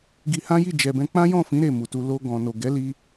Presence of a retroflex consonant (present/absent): absent